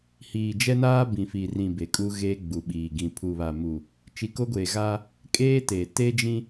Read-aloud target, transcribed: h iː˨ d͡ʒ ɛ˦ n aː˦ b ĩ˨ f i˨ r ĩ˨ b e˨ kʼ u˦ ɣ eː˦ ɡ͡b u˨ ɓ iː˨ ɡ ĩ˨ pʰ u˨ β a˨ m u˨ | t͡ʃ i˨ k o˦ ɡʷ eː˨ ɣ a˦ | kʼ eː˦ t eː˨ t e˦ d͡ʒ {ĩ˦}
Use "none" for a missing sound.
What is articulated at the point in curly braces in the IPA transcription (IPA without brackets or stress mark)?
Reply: ĩ˦